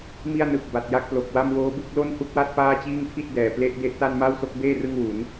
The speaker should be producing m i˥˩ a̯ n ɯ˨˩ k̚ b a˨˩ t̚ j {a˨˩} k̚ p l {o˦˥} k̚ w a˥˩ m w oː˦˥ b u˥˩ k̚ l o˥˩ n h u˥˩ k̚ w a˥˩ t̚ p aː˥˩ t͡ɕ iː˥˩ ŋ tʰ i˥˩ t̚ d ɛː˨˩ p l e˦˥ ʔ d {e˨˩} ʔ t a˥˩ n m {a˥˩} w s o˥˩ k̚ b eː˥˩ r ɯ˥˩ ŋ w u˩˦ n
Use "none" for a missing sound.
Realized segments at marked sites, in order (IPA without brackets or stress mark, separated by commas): a˥˩, o˨˩, e˦˥, a˥˩